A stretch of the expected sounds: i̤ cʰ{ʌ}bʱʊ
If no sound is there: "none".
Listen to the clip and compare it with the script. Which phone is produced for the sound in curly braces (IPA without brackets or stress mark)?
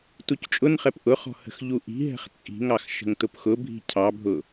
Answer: ɑ